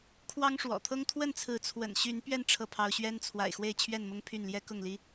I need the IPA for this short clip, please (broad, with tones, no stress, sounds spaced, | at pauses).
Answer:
kʰ w ɑ˦ ŋ ʂ w ɔ̰˨˩ t̪ʰ ɤ˦ ŋ t̪ʰ w ə˥˨ n t͡sʰ ɹ̩˨˦ t͡sʰ w ə̰˨˩ n ɕ y˨˦ n p ɥ ɛ˧ n ʈ͡ʂʰ ɤ˥˨ pʰ ɑ˦ ʊ̯ ɕ ɥ ɛ˦ n t͡sʰ w a̰˨˩ ɪ̯ x w e˥˨ ɪ̯ t͡ɕʰ ɥ ɛ˥˨ n m ʊ˦ ŋ pʰ y˥˨ n l j ɛ˦ k ʊ˥˨ ŋ l i˦